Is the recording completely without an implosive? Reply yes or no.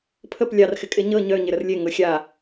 yes